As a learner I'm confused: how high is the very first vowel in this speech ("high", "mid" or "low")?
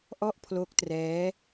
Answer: mid